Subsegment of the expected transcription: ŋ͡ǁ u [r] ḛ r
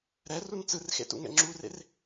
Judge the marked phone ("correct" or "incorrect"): correct